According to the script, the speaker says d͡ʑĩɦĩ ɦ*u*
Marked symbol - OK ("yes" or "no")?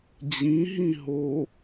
no